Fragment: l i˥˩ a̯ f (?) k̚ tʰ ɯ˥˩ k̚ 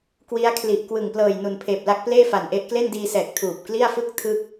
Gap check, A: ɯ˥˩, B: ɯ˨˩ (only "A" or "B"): A